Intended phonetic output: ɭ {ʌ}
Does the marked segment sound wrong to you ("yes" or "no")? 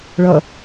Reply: no